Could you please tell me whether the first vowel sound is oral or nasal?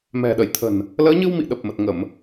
oral